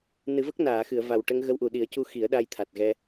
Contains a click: no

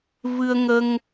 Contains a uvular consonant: no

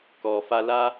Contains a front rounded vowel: no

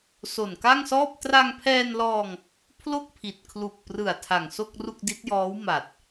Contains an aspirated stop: yes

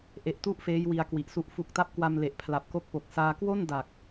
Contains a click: no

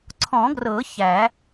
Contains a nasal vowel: yes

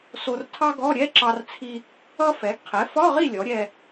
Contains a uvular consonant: yes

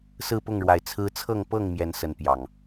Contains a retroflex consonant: yes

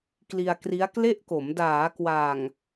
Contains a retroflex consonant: no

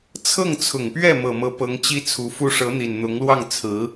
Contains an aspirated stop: yes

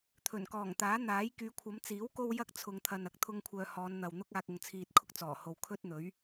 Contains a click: no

